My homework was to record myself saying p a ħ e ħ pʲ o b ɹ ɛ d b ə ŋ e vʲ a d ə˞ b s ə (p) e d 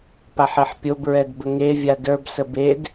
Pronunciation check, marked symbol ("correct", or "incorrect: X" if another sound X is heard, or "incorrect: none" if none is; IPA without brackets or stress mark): incorrect: b